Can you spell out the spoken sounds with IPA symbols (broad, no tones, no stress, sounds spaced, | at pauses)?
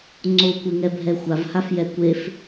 ŋ͡ǀ o kʷ e ŋ ɛ bʱ ɛ xʷ a v h a f j ɛ kʷ e f